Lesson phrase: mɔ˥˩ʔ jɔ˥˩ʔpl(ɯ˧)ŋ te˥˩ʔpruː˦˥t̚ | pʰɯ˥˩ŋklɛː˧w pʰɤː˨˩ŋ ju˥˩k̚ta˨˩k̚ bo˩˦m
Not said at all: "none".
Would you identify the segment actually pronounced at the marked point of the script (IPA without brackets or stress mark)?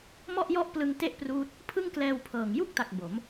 ɯ˧